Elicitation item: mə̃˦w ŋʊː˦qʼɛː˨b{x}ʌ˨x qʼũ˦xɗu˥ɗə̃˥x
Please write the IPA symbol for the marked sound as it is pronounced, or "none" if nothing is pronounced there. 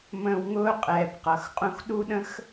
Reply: q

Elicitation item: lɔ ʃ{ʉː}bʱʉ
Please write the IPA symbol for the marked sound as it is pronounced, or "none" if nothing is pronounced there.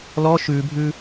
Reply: ʉː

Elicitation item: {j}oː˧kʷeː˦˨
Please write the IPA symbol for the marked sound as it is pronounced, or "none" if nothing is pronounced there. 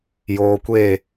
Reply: j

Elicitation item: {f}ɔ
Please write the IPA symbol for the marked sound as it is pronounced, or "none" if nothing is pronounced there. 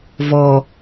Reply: v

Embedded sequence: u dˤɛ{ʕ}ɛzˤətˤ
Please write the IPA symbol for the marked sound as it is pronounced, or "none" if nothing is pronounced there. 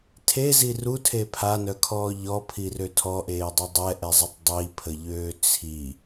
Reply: ʔ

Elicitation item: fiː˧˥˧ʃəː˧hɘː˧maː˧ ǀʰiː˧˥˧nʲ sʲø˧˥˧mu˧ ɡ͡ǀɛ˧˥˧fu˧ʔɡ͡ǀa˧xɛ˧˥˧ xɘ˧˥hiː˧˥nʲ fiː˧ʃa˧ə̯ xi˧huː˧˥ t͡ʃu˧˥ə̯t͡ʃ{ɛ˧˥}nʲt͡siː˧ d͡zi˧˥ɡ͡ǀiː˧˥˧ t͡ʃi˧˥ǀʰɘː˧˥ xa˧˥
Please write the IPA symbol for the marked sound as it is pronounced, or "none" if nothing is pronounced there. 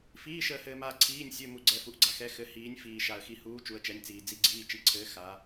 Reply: ɛ˧˥˧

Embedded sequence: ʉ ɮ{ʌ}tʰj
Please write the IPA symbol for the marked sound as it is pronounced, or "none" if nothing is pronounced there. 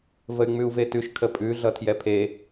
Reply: ʌ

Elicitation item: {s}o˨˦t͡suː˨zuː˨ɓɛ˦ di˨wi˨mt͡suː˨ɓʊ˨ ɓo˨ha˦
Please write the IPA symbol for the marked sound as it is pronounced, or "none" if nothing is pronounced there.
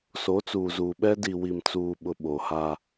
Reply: s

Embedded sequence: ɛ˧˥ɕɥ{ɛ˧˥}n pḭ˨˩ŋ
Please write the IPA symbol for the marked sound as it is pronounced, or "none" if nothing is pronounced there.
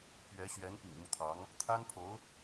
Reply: ɛ˧˥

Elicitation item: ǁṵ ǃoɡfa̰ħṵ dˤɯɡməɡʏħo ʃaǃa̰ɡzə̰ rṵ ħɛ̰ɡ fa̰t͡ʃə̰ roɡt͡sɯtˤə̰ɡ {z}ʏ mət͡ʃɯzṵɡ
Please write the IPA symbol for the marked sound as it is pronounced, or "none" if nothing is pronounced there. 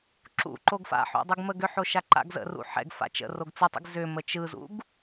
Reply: z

